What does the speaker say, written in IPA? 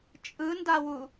t͡ʃʼ ɯ n d a w u

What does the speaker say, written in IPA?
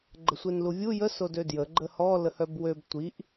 ɡ͡ǃ ə sʷ e n l u vʲ u j ə s o d ø d j ə ɡ͡ǃ ə h ɔ l ə h œ b w ø b tʷ i ʔ

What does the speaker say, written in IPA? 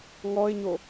ŋ ɔ ɪ̯ ɲ o

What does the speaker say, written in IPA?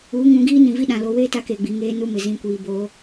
uː˨˦ ŋ ũ˨˦ ɡ iː˦ n ĩ˨ v i˦ ɗ ã˨ l o˨ w eː˦ t a˦ k e˨ ɡ͡b i˨ ŋ eː˦ n u˦ m ɪ˨ z ĩ˨ kʷ iː˨ b o˨˦

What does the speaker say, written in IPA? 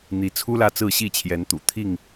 n̪ i˨˦ t͡sʰ u˦ l ä˥˨ t͡s ɹ̩˥˨ ɕ i˥˨ t͡ɕʰ j ɛ˨˦ n t̪ ṵ˨˩ t̪ʰ i˥˨ ŋ

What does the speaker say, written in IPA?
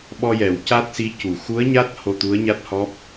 ɓ ɔ˧ j ɛ˨˩˨ w c a˦˥ t̚ s i˧˥ c u˨˩˨ x u˧˥ ə̯ ɲ a˦˥ t̚ h o˧ t̪ u˧˥ ə̯ ɲ a˦˥ t̚ h ɔ˦˥ p̚

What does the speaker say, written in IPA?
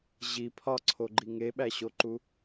ʑ i pʰ ɒ ǀʰ o ɡ͡ǃ i ŋ e ɓ æ ɕ o ǃ u

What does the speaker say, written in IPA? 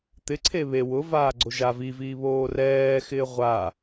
t̪ ɪ ǀʰ e β e w ʊ v aː ɡ͡ǀ o ʒ a v i v iː β oː r ɛː x ɪː ʁʷ a

